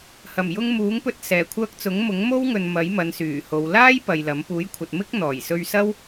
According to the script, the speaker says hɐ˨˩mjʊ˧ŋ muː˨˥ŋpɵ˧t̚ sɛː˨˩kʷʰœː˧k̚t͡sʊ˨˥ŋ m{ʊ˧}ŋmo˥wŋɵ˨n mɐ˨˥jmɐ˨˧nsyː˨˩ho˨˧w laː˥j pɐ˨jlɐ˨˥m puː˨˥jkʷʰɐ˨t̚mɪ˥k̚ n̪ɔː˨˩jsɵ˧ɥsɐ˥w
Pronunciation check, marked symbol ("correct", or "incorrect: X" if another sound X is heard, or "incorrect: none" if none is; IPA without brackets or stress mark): incorrect: ʊ˨˥